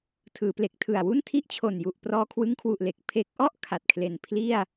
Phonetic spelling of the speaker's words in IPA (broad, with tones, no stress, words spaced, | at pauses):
tʰɯː˩˦ple˨˩k̚tʰɯ˨˩a̯ wu˥˩ntʰi˥˩ʔt͡ɕʰo˨˩nju˨˩ʔ prɔː˧kʰwɯ˦˥ŋkʰwu˨˩ʔle˨˩k̚ pʰe˦˥k̚ ʔɔ˥˩ʔ kʰa˨˩t̚kʰle˨˩n pʰli˥˩a̯